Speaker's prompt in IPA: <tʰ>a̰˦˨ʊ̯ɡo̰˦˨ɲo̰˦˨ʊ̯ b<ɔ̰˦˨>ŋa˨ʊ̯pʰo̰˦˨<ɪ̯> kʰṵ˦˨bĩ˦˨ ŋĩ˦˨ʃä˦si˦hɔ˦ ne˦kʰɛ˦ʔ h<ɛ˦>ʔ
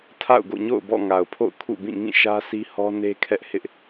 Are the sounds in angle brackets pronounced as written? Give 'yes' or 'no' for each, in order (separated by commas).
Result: yes, yes, no, no